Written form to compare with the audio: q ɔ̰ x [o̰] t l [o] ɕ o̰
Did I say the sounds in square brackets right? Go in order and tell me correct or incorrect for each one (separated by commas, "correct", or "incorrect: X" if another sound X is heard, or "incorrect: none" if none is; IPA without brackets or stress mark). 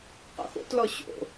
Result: correct, incorrect: ɔ